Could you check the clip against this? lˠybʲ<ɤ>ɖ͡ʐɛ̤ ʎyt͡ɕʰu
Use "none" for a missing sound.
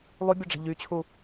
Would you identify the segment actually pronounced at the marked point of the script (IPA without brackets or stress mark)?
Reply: ɔ